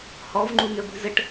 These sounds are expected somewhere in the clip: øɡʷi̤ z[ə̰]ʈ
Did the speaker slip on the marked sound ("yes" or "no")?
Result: yes